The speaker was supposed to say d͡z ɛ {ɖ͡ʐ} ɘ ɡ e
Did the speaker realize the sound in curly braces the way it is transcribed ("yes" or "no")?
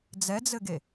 no